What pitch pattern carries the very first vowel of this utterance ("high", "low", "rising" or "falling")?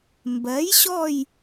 rising